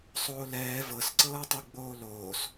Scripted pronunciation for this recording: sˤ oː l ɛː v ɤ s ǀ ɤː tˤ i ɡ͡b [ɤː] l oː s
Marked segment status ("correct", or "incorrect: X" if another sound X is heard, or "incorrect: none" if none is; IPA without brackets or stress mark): incorrect: oː